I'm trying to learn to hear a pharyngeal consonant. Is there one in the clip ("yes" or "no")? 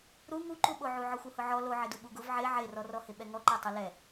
yes